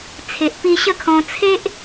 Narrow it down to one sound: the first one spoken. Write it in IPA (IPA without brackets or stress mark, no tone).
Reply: t͡sʰ